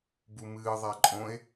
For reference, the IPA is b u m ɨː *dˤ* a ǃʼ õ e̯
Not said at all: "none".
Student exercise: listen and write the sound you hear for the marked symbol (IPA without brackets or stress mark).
ðˤ